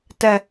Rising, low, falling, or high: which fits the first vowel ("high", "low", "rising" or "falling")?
high